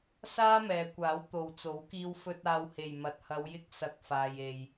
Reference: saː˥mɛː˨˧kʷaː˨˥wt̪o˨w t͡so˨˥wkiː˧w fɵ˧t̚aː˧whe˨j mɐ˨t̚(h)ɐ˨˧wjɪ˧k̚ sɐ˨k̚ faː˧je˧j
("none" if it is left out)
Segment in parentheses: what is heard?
h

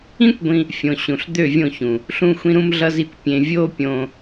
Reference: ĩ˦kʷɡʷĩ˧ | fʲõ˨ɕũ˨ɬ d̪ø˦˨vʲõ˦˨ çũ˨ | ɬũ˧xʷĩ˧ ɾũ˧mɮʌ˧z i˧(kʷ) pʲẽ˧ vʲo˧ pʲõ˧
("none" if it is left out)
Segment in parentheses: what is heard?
kʷ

